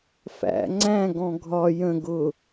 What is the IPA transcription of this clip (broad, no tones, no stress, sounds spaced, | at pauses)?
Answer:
f æ̰ ŋ͡ǀ æ̃ ɡ ɔ̃ ɡʱ ɒ j ə̃ ɡ ʊ